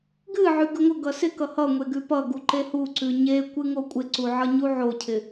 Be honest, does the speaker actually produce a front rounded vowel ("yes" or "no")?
no